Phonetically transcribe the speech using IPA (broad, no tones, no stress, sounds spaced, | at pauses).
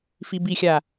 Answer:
f i b i xʲ a